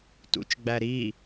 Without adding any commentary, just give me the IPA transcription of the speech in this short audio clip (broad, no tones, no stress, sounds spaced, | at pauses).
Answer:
t ṵ t͡ʃ ɡ͡b æ ɾ i